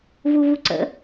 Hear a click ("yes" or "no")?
yes